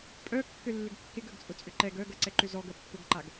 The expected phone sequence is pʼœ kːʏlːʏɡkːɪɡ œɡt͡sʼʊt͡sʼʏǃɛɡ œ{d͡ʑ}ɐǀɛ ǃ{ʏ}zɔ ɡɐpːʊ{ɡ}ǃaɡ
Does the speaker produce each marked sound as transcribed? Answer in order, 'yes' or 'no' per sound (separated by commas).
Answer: no, yes, yes